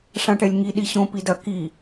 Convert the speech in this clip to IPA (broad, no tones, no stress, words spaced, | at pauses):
ʂãʈɛlʲŋi ɗiɕõ pidɐ ki